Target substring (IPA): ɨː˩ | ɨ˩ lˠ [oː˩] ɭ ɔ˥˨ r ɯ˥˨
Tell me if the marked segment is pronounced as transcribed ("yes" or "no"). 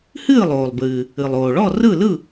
yes